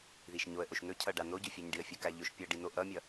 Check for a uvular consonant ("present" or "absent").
absent